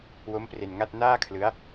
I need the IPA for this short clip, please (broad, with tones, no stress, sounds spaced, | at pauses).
w o˦˥ m p r e˧ n ŋ a˥˩ t̚ n aː˥˩ kʰ l ɯ˦˥ a̯